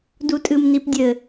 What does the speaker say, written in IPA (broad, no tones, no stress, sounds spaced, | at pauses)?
d u tʼ ɨ m n i p dʲ ɘ